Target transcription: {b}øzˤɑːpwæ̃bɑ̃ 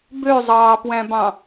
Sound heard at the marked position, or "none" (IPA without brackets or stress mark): b